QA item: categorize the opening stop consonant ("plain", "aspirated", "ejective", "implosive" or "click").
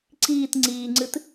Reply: click